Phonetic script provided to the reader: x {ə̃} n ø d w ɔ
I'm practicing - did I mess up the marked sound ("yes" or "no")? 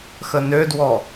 yes